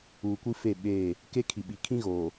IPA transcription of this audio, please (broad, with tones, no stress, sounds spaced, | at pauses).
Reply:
uː˨ kʷ i˦ f e˦˨ ɓ eː˦˨ | k e˦ kʰ i˨ ɓ i˨ kʰ ĩ˦ ɣ oː˨